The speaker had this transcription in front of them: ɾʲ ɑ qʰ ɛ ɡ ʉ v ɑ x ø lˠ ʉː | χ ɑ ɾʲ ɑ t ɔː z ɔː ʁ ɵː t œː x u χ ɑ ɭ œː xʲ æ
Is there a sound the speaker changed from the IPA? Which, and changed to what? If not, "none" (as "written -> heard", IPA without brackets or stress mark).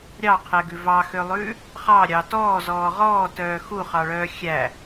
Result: ɵː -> ɔː